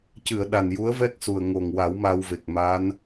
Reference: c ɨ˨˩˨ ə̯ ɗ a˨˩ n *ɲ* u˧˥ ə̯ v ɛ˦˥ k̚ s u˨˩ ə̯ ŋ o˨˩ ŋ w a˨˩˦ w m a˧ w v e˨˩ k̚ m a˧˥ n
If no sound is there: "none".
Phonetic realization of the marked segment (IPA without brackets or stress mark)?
j